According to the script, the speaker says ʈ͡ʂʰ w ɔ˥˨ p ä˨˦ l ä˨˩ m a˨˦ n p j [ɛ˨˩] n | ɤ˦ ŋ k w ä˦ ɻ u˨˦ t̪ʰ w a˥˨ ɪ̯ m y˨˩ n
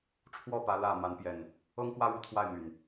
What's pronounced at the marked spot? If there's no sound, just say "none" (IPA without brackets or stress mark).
ɛ˨˩